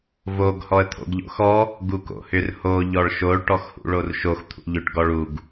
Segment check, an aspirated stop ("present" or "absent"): present